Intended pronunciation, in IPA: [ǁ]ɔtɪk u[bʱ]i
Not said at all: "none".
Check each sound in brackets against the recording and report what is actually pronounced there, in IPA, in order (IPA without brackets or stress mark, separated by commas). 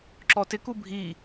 ǁ, bʱ